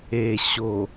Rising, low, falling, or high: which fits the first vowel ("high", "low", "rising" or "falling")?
low